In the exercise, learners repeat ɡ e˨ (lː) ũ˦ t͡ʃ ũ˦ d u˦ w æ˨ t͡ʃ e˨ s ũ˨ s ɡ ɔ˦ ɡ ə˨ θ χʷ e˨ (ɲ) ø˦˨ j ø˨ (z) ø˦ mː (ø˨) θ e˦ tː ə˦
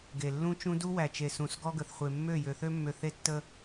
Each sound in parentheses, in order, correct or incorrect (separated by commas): correct, incorrect, incorrect, correct